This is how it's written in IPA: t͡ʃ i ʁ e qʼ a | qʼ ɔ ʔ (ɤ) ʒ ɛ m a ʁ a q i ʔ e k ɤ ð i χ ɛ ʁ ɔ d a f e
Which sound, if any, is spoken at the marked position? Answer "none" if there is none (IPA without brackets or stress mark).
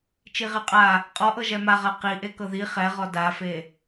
ɤ